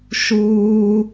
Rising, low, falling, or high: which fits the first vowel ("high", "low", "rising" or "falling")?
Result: high